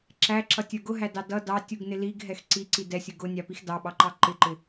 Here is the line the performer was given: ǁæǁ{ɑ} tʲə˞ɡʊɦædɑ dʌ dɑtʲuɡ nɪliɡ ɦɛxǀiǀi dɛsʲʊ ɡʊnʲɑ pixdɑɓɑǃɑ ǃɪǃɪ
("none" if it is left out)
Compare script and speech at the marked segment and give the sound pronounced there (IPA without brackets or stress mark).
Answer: ʌ